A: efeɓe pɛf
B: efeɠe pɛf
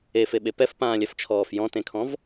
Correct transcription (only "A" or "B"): A